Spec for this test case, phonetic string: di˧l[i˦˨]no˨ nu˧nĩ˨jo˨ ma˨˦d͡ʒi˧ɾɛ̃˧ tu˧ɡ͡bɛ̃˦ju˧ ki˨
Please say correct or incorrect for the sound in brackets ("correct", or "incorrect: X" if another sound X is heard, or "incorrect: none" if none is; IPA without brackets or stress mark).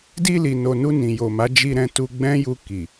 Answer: incorrect: i˨